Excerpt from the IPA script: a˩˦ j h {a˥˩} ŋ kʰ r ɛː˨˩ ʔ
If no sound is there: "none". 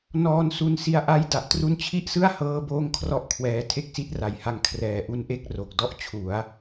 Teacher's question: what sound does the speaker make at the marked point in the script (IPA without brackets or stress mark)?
a˧